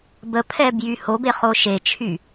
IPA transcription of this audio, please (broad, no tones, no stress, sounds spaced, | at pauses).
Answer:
b ə pʰ ɛ b j y h o b e χ o ʃ e t͡ʃʰ y